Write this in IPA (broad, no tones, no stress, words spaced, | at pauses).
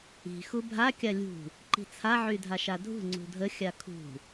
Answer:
i̤ xubʱa kʲalʲṳ | ǃi̤t͡sʰa ʕydʱaʃadʱṳ ŋ͡ǀṳdʱə xʲakʰṳ